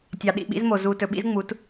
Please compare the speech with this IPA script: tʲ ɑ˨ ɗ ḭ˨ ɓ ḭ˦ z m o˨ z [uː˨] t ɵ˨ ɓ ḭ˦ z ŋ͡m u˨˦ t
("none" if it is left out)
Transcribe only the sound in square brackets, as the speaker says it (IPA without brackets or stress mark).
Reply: uː˨